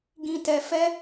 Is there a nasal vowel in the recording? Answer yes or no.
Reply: yes